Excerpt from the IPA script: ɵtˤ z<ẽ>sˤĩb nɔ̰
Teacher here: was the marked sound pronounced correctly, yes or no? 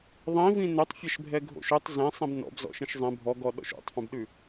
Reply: yes